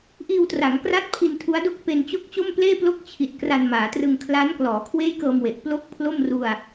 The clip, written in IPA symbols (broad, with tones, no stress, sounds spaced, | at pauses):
ʔ iː˧ w t r a˩˦ ŋ k r a˦˥ t̚ pʰ i˧ n tʰ u˦˥ a̯ d o˥˩ k̚ p e˧ n t͡ɕ o˥˩ k̚ t͡ɕ o˥˩ m p l eː˥˩ p l o˥˩ k̚ t͡ɕʰ i˨˩ t̚ k r a˧ n m aː˩˦ t r ɯ˧ ŋ kʰ l a˦˥ n k l ɔː˩˦ kʰ w eː˥˩ j k ɤː˧ m w e˨˩ ʔ p l o˥˩ k̚ pʰ l o˥˩ m r u˧ a̯